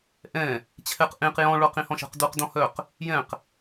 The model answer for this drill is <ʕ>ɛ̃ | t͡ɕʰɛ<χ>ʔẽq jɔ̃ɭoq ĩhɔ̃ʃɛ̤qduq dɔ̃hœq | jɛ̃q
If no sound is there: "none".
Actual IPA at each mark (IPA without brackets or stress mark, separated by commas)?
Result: ʔ, q